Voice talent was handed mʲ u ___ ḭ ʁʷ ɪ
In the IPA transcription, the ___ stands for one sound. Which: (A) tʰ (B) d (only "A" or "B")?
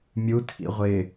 A